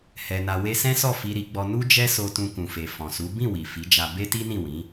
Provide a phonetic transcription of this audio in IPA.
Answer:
hɛ˧na˧ we˧sɛ̃˦sɔ˦˨ fi˧ɾi˧ɡ͡bɔ˧ nu˦d͡ʒɛ˦so˧ tũ˧kũ˨fe˨ fɔ̃˨su˨˦ bĩ˦˨ wi˨fi˨˦d͡ʒa˧ be˦ti˦nĩ˦˨wĩ˨˦

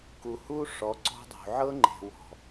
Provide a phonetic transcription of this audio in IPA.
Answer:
ku˨hu˦ ʂɔ˨˦ ǀɔ̤˦dˤṳ˨ ʕɤ˦ŋ͡ǃe̤˨wɔ̤˨

